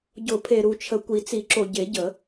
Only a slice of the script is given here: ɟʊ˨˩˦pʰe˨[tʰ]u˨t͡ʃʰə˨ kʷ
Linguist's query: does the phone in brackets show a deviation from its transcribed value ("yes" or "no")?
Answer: yes